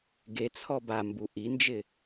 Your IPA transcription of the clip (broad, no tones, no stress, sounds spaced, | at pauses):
ɡ e t͡sʰ ɔ b a m b u ʔ i n d͡ʒ ɪ